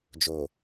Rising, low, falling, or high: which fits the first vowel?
low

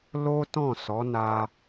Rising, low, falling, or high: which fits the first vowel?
high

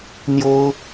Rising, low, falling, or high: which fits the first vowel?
high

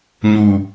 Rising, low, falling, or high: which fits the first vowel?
low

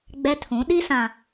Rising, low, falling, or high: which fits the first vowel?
high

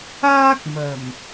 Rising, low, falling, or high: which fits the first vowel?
high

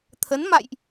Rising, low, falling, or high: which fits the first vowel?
rising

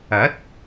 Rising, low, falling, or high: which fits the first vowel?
rising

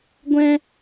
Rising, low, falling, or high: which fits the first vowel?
high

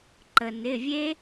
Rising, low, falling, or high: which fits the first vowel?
low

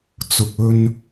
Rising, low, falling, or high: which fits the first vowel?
low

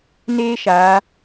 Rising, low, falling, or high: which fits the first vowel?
high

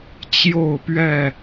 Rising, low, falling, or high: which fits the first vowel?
falling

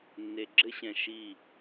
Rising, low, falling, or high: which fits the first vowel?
low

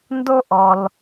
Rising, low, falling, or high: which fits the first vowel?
high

